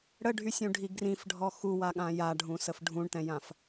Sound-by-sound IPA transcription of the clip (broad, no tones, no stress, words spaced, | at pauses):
ɽəɖʱysʲũɖʱi ɡrĩfɖʱɔ xuwaɠã jaɖʱũsəf ɖʱũɳtɛ̃jãf